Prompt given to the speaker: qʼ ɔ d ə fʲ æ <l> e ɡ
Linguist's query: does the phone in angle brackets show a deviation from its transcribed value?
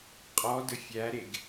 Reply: yes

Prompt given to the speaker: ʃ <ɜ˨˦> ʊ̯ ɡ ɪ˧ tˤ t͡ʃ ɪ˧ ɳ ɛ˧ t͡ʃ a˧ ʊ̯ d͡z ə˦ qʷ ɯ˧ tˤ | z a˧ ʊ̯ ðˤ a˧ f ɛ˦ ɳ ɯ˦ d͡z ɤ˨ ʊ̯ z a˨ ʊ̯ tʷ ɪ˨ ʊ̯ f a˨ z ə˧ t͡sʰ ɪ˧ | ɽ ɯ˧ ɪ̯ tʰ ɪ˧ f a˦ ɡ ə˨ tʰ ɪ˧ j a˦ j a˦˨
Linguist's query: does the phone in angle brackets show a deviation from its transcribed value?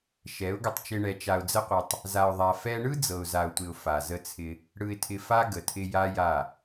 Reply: yes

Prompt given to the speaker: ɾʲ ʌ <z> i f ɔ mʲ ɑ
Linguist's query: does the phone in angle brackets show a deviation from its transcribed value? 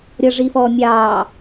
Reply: yes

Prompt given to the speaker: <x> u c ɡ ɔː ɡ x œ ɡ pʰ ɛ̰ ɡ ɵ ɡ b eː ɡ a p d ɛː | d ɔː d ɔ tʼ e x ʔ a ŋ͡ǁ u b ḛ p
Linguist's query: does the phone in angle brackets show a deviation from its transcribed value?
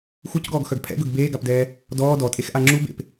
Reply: no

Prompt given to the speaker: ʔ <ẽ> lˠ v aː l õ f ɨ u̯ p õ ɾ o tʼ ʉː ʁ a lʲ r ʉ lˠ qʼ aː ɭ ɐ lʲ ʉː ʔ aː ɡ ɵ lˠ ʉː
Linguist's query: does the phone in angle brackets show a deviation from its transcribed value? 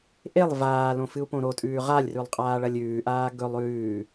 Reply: yes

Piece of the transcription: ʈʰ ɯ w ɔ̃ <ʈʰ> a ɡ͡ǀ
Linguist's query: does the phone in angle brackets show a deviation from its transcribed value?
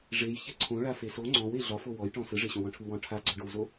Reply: no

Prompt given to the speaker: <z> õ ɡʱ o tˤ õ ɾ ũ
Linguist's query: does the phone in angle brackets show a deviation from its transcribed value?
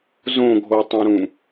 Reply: no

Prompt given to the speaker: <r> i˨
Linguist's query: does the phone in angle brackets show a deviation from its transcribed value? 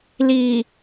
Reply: yes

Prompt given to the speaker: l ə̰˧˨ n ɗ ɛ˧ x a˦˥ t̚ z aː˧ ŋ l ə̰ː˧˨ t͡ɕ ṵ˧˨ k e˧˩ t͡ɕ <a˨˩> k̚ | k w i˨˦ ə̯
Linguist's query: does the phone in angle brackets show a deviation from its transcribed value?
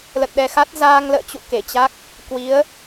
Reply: yes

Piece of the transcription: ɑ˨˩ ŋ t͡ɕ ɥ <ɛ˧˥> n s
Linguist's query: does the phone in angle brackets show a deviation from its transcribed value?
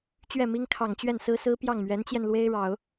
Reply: yes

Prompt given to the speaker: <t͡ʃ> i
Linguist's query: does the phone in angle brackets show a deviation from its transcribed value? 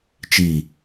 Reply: no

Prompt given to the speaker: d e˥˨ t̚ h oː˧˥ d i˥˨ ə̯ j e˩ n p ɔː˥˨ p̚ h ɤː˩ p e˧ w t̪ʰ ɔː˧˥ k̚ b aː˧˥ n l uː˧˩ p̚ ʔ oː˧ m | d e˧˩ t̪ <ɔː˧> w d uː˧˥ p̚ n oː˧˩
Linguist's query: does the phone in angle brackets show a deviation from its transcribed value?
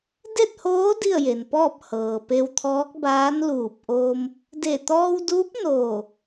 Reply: no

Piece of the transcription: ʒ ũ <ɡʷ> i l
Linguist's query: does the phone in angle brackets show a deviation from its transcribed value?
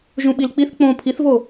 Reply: yes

